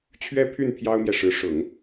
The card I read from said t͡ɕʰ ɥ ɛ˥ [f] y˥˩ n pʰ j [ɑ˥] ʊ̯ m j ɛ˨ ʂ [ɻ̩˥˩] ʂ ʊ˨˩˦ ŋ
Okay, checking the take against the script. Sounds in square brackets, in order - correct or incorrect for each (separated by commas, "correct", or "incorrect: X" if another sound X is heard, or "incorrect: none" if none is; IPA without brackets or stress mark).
incorrect: pʰ, correct, incorrect: ɻ̩˧˥